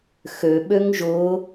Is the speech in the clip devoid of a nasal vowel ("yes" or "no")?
yes